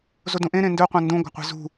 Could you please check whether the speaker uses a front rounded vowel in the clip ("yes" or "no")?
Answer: no